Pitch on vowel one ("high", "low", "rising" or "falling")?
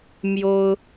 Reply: high